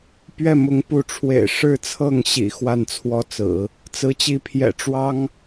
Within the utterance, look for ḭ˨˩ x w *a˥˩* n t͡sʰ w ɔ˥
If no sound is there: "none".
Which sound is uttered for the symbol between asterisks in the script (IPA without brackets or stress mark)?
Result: a˥˩